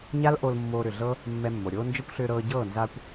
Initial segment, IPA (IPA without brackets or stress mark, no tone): ɲ